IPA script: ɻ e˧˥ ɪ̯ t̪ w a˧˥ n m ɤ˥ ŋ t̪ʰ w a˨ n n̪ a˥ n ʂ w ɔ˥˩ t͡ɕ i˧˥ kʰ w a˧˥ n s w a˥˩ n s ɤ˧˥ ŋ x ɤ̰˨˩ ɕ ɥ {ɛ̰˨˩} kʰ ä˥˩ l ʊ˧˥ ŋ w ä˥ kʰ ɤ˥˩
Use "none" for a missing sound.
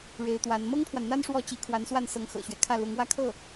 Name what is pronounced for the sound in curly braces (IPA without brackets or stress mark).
ɛ˦